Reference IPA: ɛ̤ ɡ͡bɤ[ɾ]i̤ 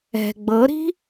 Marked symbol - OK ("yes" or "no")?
yes